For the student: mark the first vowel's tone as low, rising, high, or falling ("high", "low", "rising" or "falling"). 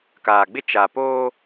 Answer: low